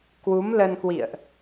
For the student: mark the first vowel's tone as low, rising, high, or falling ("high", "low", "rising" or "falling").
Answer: rising